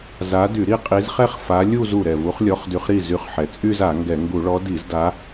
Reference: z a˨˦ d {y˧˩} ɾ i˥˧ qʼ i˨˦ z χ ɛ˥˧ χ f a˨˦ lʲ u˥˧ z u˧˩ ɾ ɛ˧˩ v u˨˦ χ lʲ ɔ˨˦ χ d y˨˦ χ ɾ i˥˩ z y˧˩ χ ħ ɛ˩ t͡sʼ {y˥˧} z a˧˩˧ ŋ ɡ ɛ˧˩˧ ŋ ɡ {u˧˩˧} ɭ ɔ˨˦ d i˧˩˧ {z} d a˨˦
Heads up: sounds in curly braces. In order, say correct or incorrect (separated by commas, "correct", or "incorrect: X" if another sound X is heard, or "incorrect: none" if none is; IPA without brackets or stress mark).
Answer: incorrect: y˧˩˧, correct, correct, correct